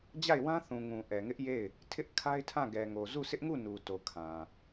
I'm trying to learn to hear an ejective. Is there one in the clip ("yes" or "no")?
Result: no